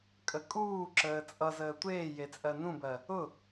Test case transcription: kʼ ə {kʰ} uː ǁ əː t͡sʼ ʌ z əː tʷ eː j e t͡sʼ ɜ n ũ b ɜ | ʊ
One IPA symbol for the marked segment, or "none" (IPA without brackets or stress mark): kʼ